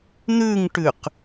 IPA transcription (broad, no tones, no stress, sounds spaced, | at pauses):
n̪ ʉ ŋ ʈ ʉ q